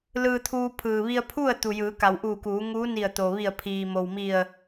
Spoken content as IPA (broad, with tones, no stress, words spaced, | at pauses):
lɯː˧t̪ʰuː˧ pʰɯː˩ʋi˧ə̯pʰu˥˨ə̯ t̪u˩jɯː˩˧ka˩wʔuː˧˩ kuː˩˧ŋuː˧˥ ni˧˩ə̯t̪o˩ ʋi˧˩ə̯pʰiː˩mo˩wmi˧˩ə̯